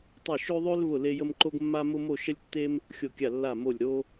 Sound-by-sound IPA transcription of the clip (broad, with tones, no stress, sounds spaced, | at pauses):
tˤ ʊ˦˨ ʃ ø˦ ðˤ ø˦ l v ʊ˦˨ l e˦ j ə˦ m ǃ o˦ ɡ mː a˦ m ʊ˦ m o˦˨ ʃ ə˦ lʲ tː e˦ m | xʲ o˦˨ kʲ a˦˨ lː a˦˨ m o˦˨ lʲ ɾ o˦